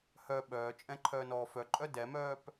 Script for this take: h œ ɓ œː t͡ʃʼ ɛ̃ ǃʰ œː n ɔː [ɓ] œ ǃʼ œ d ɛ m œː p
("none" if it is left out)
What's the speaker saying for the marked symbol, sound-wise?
f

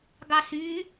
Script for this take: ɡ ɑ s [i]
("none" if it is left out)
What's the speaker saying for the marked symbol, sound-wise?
y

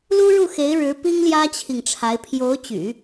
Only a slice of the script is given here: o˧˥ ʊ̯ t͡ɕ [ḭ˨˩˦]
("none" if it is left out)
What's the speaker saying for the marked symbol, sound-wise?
y̰˨˩˦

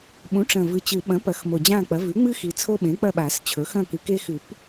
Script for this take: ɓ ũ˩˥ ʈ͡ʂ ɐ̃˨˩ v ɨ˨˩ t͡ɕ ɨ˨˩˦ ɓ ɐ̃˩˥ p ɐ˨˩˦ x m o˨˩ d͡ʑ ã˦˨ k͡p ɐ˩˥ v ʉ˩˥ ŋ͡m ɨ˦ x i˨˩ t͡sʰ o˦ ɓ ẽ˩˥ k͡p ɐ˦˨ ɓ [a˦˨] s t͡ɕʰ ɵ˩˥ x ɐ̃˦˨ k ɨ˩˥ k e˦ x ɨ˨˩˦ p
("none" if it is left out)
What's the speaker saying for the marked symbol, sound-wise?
a˨˩˦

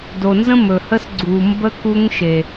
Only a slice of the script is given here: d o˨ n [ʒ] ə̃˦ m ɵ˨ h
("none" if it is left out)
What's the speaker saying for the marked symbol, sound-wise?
z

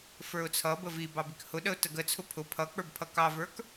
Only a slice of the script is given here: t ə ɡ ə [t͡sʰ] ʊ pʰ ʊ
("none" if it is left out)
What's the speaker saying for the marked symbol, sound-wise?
t͡sʰ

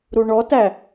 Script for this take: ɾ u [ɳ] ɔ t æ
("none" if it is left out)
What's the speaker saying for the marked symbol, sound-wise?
ɳ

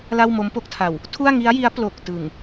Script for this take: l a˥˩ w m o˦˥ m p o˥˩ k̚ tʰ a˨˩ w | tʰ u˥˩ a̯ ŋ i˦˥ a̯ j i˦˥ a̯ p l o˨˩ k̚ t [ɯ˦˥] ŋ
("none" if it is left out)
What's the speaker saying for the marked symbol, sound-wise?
ɯ˨˩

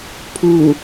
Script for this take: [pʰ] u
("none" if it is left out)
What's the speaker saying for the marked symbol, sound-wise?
pʰ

